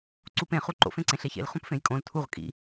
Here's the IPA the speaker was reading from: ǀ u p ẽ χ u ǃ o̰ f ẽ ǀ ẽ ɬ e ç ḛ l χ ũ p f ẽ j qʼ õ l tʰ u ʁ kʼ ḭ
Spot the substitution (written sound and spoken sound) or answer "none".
qʼ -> kʼ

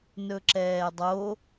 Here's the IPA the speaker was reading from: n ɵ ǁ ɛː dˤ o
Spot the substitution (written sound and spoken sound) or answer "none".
none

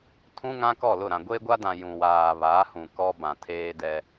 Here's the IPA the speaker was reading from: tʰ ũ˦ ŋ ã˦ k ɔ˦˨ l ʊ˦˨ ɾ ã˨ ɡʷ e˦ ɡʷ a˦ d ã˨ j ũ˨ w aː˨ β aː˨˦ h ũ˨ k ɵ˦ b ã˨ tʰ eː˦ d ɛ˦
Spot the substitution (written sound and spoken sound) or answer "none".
ɵ˦ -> ɔ˦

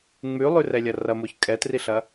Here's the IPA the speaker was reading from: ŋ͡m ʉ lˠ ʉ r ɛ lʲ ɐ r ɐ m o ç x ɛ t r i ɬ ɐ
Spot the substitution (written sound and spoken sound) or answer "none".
x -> kʼ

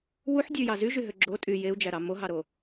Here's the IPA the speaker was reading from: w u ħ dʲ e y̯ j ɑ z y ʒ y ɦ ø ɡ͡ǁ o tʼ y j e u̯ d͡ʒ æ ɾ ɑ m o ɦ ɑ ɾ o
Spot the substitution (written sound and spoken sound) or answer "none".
none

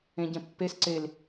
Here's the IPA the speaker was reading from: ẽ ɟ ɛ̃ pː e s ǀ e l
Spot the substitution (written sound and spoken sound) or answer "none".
none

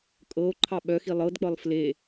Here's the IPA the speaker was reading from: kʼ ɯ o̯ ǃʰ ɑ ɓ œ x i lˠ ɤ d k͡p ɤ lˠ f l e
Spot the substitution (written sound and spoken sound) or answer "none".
ɯ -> ɤ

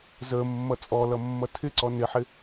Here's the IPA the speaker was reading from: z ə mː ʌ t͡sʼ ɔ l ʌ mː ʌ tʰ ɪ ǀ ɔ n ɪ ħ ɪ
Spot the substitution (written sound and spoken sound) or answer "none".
none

